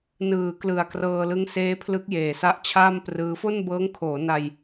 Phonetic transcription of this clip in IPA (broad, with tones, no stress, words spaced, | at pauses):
nɯː˩˦klɯ˨˩a̯ krɤː˧lɯ˦˥ŋ seː˦˥pʰlɯ˦˥k̚jeː˨˩sa˦˥ʔ t͡ɕʰaː˥˩mprɯː˦˥ fo˥˩nbɤː˦˥ŋkʰoː˩˦na˧j